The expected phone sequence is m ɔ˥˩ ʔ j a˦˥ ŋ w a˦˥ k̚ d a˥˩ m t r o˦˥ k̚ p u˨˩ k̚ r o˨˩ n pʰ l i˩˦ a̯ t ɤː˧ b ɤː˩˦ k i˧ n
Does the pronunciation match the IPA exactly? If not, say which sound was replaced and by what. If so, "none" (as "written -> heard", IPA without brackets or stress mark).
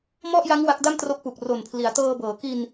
none